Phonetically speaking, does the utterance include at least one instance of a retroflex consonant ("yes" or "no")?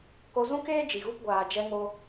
no